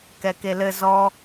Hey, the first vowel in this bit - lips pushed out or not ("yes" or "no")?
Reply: no